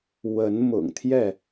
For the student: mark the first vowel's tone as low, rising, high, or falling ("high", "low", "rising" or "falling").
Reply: rising